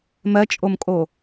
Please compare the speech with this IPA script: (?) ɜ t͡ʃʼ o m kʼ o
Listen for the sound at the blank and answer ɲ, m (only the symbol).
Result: m